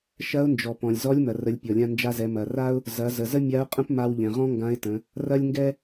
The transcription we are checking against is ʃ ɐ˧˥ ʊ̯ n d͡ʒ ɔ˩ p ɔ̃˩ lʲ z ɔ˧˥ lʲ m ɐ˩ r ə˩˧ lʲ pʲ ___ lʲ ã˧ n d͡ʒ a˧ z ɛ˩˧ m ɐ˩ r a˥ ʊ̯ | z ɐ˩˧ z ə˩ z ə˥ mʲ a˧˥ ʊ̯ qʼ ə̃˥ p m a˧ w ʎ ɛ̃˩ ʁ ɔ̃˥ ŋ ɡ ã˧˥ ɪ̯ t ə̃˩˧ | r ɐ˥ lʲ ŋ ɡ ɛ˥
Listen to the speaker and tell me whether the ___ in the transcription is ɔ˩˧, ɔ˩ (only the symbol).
ɔ˩